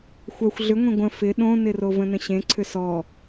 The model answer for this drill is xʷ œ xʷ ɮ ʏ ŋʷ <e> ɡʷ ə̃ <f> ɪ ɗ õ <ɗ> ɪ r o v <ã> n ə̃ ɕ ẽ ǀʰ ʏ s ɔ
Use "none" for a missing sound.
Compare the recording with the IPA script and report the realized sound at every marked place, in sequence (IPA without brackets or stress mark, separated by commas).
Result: ẽ, f, n, ə̃